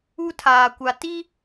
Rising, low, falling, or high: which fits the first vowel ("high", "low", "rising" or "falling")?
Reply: high